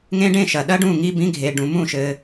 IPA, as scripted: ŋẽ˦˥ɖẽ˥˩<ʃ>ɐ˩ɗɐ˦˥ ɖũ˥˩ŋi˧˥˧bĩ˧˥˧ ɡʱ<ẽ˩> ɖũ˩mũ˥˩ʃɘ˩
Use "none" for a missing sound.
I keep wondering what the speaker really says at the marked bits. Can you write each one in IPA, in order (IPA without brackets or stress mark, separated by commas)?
ʃ, e˩